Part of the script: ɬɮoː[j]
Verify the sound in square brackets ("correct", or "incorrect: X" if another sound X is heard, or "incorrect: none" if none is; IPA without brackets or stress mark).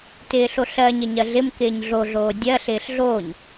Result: incorrect: ɲ